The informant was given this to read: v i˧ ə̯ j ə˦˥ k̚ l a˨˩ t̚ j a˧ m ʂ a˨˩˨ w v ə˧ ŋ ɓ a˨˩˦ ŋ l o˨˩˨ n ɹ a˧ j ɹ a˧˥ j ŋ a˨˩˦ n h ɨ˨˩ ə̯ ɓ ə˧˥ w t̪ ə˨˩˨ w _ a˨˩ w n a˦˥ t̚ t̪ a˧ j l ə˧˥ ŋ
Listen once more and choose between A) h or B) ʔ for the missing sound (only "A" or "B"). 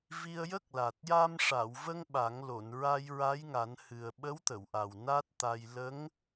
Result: B